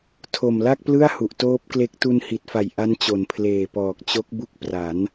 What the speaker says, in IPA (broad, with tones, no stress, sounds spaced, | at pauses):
tʰ o˨˩ m l a˥˩ k̚ p l ɯ˥˩ a̯ h u˨˩ ʔ t oː˦˥ p̚ k l e˦˥ k̚ t u˧ n h i˨˩ t̚ f a˨˩ j ʔ a˦˥ n t͡ɕ o˩˦ n pʰ l eː˨˩ p ɔː˨˩ k̚ t͡ɕ o˦˥ k̚ b u˦˥ k̚ p r a˩˦ n